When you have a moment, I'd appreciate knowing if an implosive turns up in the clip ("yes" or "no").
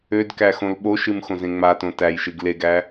yes